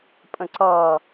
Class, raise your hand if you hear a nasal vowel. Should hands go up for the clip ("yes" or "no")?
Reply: yes